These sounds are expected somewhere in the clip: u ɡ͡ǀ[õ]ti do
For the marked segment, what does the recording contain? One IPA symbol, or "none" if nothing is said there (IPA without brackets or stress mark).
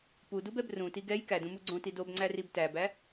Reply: õ